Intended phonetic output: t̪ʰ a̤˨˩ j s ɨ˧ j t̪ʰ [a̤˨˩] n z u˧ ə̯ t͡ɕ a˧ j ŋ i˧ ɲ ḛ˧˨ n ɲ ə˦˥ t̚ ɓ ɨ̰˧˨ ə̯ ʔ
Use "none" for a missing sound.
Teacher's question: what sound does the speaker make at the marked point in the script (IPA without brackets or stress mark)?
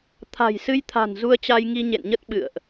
a̤˨˩